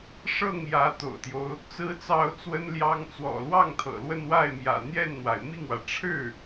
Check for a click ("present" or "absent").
absent